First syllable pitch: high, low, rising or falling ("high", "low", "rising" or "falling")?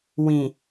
low